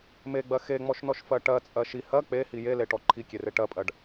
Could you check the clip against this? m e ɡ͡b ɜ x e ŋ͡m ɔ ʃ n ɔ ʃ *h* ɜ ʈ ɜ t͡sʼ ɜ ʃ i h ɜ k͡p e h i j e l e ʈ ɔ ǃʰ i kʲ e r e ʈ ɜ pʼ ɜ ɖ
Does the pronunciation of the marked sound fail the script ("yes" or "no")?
yes